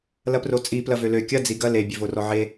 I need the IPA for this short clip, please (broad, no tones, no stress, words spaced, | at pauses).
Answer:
lɐprot͡sʼi plɐvølø kʲɐ d͡ziɡɐ le bʲøvorɔʕe